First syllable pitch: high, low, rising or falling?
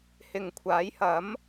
low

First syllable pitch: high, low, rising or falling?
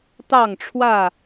falling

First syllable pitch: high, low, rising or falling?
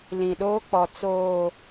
low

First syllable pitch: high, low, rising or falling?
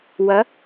rising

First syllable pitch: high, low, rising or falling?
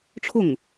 falling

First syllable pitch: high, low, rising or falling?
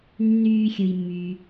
low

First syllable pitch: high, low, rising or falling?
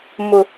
low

